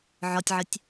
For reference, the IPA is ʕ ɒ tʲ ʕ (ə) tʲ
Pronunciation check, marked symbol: correct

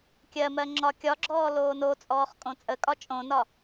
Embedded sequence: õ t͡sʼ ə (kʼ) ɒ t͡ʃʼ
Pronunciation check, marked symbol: correct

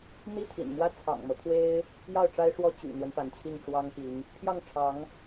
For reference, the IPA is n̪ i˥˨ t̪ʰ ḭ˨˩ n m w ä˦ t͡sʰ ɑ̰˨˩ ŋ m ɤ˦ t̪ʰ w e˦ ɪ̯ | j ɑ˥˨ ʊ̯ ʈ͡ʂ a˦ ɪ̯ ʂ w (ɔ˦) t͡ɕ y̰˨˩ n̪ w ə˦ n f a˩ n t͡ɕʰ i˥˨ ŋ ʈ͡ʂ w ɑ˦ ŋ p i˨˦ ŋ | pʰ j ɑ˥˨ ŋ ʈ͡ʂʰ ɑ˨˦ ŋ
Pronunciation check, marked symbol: correct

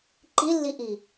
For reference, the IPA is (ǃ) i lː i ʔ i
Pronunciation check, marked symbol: correct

